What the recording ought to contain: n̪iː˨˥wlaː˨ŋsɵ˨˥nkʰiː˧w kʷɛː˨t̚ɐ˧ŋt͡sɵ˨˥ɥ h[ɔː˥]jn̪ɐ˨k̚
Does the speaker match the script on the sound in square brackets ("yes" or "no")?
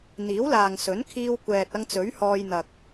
no